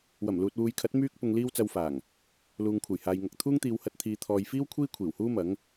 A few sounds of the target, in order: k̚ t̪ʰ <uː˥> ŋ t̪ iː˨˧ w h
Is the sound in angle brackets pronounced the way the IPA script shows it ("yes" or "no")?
yes